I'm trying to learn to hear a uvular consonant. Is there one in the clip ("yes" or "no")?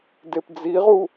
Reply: yes